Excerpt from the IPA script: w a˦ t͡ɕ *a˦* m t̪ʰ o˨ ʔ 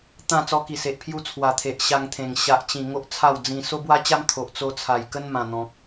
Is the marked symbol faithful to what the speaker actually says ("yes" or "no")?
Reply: yes